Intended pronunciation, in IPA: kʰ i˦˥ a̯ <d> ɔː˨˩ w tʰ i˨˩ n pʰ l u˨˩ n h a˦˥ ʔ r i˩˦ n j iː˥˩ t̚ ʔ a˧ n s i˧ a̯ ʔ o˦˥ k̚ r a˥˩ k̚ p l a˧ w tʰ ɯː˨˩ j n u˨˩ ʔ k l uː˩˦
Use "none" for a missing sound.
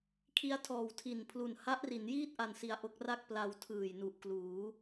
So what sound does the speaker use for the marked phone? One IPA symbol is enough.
tʰ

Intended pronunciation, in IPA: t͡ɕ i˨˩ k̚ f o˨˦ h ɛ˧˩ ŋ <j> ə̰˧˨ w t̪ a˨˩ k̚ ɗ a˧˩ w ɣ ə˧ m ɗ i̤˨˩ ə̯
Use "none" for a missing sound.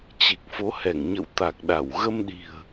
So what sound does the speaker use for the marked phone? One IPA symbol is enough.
ɲ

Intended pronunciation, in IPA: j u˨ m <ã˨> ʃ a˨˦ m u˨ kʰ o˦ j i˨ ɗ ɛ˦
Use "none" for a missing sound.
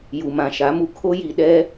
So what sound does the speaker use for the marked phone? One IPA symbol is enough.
ã˨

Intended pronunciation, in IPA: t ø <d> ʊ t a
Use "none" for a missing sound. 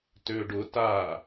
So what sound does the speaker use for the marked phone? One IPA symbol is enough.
ɖ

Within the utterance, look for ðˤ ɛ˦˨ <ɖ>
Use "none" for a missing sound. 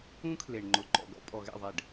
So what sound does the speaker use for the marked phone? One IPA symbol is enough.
ɖ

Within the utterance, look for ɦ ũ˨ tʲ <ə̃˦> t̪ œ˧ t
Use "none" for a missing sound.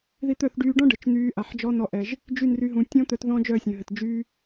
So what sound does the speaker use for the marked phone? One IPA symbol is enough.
ɔ̃˦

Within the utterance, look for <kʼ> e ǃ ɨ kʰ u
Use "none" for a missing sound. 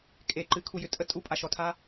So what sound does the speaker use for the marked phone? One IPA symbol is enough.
kʼ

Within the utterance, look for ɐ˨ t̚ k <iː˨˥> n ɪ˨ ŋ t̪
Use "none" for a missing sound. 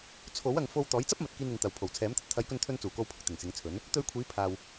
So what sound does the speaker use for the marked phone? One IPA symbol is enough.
iː˧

